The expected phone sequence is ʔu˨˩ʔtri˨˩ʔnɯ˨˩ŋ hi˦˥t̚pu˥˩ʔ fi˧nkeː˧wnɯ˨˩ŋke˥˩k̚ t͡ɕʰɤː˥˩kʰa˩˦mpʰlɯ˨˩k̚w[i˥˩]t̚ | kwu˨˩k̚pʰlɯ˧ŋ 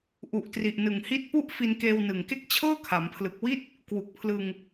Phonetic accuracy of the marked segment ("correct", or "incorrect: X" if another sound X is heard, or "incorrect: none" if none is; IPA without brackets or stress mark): correct